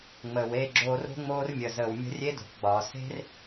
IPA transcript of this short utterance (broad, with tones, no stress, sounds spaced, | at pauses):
ŋ͡m əː˨ w eː˦˨ ɡ͡ǁ oː˧ r o̤˦ ŋ͡m oː˦ r mʲ ə˨ z əː˨ w mʲ ə̤˦ rʲ e˦ d o̤˨ k ɡ͡b ɒː˨ s e̤˦ r